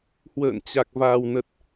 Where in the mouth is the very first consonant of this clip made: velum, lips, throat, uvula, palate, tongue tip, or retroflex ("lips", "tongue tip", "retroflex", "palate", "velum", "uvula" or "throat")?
throat